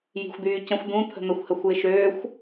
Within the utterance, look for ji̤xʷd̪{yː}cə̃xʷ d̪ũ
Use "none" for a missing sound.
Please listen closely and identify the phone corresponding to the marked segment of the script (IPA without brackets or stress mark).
yː